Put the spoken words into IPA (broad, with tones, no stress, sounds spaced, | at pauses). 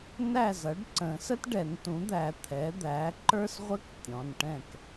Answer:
n æ˥˨ z ʌ˩˥ ɖ ǀ ə̃˨˩˦ s ə˥ t ɖ ɛ˨˩˦ n t ũ˩˥ d̪ æ˨˩˦ t̪ʰ ɛ˩˥ d̪ æ˩˥ ǃ ə˞˥ s ʁʷ ə˥ k tʲ ɔ̃˩˧˩ n ʈ ɛ̃˥˨ k